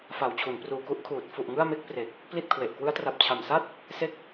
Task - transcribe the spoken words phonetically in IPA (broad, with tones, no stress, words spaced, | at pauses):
fa˨˩wt͡ɕʰu˩˦npruː˨˩ku˥˩ʔ kʰuː˨˩t̚ fu˨˩ʔ ŋɯ˥˩a̯me˥˩k̚pre˨˩k̚ | pli˥˩t̚kʰwe˨˩ʔ kwɯ˦˥a̯tra˨˩p̚ t͡ɕʰa˨˩msa˥˩t̚ | se˦˥k̚